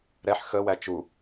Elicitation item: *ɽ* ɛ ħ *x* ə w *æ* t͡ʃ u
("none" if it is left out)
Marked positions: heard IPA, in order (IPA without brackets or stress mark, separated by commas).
ɾ, x, æ